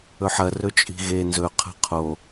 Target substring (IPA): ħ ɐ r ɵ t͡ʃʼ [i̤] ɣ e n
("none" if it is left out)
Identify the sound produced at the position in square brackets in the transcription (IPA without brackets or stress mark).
i̤